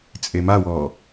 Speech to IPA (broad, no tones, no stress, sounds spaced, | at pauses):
t͡sʼ e m a w ɔː